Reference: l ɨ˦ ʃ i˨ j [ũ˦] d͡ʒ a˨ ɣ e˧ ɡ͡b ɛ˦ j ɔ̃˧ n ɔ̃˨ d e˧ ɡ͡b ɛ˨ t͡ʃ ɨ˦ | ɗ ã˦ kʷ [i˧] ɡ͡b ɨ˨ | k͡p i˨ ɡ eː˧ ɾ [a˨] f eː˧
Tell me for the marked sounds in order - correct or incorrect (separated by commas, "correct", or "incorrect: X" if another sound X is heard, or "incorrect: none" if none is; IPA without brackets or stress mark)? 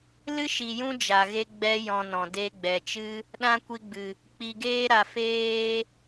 correct, correct, correct